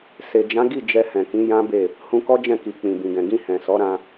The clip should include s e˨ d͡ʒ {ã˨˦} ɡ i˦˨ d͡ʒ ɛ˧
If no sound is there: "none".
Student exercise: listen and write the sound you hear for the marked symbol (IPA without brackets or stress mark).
ã˨˦